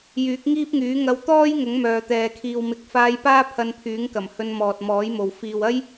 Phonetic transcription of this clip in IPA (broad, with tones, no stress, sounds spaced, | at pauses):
j yː˨˥ k̚ ŋ iː˥ p̚ ŋ yː˨˥ ŋ ɐ˧ w t̪ ɔː˥ j ŋ ʊ˨˥ ŋ m œː˨ t̪ ɛː˨ kʰ iː˨ w m ɪ˨˥ k̚ f aː˧ j p aː˥ pʰ ɐ˧ n pʰ yː˨˥ ŋ k ɐ˨˩ m h ɵ˧ n m ɔː˨ t̚ m ɔː˨˥ j m o˨ w f iː˨ w ɐ˥ j